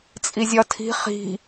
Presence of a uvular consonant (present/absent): present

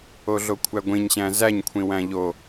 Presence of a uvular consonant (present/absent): absent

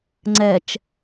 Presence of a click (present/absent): present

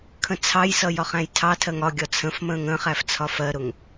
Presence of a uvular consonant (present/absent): present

